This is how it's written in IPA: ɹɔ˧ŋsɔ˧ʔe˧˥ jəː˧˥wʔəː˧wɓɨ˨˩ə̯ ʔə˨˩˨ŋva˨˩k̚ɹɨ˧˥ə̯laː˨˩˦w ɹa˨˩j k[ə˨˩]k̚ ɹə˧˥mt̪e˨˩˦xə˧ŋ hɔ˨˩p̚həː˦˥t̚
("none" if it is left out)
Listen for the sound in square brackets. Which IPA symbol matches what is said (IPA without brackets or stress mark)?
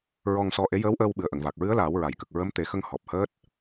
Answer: ə˨˩